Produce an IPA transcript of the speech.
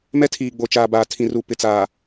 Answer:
m ɛ˦ tʰ iː˨ ɡ͡b o˨ t͡ʃ aː˨ b aː˨ tʰ ĩ˨ r u˨ p ɪ˨ t͡s aː˨

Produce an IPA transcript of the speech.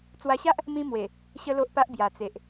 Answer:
t͡s w a˧ ɕ a˦ ʔ | m ĩ˦ m w e˨˩ | ɕ ə˦ l o˦ ʔ p a˦ ʔ b j a˨˩ t͡s e˨ ʔ

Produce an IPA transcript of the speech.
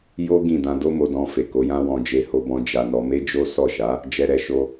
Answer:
j o˦ ɡ ĩ˦˨ d ã˧ d o˦ m o˧ d ɔ̃˧ f e˨ k o˨˦ j ã˦ w ɔ̃˧ d͡ʒ e˧ h o˧ b ɔ̃˧ d͡ʒ a˧ n ɔ˧ m e˦ d͡ʒ o˦ s ɔ˦˨ ʃ a˨˦ | d͡ʒ ɛ˧ ɾ ɛ˧ ʃ o˧

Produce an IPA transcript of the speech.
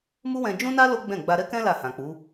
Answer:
m u˦ w ɛ̃˧ d͡ʒ ũ˦ n a˦ l o˦ ɡ͡b ɛ̃˦˨ ɡ͡b a˧ ɾ ɛ˦ k ɛ̃˦ l a˦˨ h ã˨ k͡p u˨˦

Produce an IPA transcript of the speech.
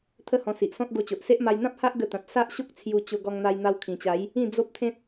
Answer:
t̪ʰ ə˥˧ h ɔ̃˧ s i˨ ʔ s ɔ̃˦ t̚ ɡ o˧ t͡ɕ o˨ ʔ s e˦ ʔ m a˧ j n̪ ã˦ p̚ h a˦ ʔ ɡ ə˧ t̪ ã˨ t̚ s a˦ ʔ ɕ o˦ k̚ t͡sʰ j u˧ t͡ɕ o˧ ɡ ɔ˧ ŋ n̪ a˧ j n̪ a˧ w kʰ ĩ˨˩ t͡ɕ a˨˦ j | ĩ˥˧ d͡z o˦ p̚ t̪ʰ ẽ˦ t̚

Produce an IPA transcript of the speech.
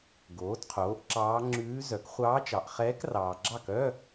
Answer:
ɡ oː˩˥ d qʰ oː˩˥ ʔ ǁ ɑː˧˥ ŋ͡ǁ ʉː˧˥ z œ˩˥ k χʷ ɑː˧˥ t͡ʃ ɑ˨ ʔ χ ɛː˧˥ k r ɑː˨ ɡ͡ǁ ɑ˥˩ k œ˧˥˧

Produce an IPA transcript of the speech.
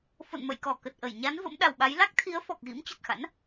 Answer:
f o̰˧˨ n m ə̰˧˨ j k ɔ˧˩ k ə˨˩ t̚ ʔ ə˧˩ j ɲ a˨˦ n v ə̰˧˥ m ɗ a˨˩ w ɓ a˨˦ j l a˦˥ k̚ t̪ʰ i˨˦ ə̯ f ɔ˨˩ k̚ ɣ ḭ˧˥ m t͡ɕ ə˨˩ t̚ x a̰˧˥ n

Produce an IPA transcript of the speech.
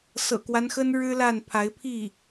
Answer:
s ɤ̰˨˩ k w a˦ n x ə˥ n ɻ ɻ̩˥ l a˥˩ n pʰ a˧˥ ɪ̯ pʰ i˥˩

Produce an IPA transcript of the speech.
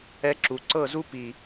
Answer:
ɛ˧ ǁ u˨ ǀ ɤ˦˨ z u˦ p i˨

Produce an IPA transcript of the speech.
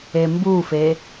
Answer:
e m b u f e

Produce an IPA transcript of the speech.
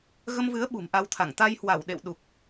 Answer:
ɣ ə˧ m v ɨ˨˦ ə̯ ɓ ṳ˨˩ m ʔ a˧ w t̪ʰ a˧˩ ŋ t̪ a˧ j h w a˧˩ w ɗ ḛ˧˨ w ɗ u˨˩ k̚

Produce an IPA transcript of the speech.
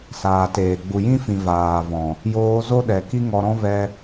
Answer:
s aː˨ t eː˨ ɡ͡b u˨ j ĩ˦ f ĩ˨ v aː˨ v ɔ̃˨ | j oː˧ z o˦ ɗ ɛ˨ k i˦ ŋ ɔ˧ ɾ ɔ̃˦ v ɛ˧

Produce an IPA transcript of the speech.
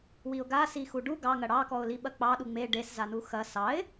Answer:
w i ʊ̯ ɡ a s i x u ɖ u ɡ ɑ ŋ ɐ ɽ ɑ k ɔ ʊ̯ l i ɓ ɐ k͡p ɑ ɗ u ŋ͡m e ɖ e s z a n u x ɐ s ɑ ɪ̯

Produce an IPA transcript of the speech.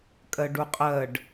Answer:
kʼ ɜ ɖ u qʼ ɜ ɖ

